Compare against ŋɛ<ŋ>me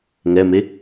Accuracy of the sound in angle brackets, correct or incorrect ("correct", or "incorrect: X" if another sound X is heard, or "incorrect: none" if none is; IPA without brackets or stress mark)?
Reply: incorrect: none